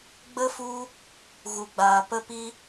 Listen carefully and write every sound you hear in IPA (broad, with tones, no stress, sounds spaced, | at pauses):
ɡ͡b ə˦ f u˦ | ɣ u˧ ɡ͡b aː˧ p ə˦ p i˦